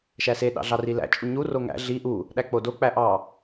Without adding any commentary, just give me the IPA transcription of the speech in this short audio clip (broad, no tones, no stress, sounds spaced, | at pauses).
ʃ æ s e ɗ ɑ̰ ɮ ɑ r i l æ̰ t͡ʃʼ u ɲ u r o ŋ æ̰ ɮ i ʔ u | ɗ æ k͡p o d o k͡p æ ʔ ɑ